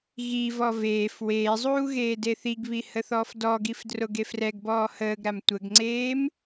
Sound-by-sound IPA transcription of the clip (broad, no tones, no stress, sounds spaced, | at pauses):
ɣ i v ɔ v eː f w eː zˤ uː ɣ eː d e θ i ɡ β i h ə θ ɔː f d ɔ ɡ i f d r o ɡ e f r ɛ ɡ b ɔː h əː ɡ ɾ a m tʷ ə ɡ ŋ͡ǀ eː m